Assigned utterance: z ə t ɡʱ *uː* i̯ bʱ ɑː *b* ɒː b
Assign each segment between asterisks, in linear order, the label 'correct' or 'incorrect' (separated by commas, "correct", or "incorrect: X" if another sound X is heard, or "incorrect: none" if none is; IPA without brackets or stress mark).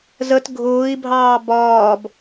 incorrect: ʊː, correct